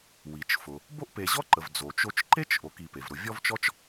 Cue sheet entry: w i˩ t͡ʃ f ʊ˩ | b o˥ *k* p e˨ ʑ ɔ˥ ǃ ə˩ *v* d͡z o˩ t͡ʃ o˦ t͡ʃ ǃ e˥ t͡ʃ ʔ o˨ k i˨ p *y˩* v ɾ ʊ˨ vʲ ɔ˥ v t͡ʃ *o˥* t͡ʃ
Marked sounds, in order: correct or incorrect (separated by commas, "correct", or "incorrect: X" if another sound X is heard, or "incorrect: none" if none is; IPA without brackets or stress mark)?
incorrect: ʔ, correct, incorrect: e˩, incorrect: ɔ˥